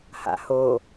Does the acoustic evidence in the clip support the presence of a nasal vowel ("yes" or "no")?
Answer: no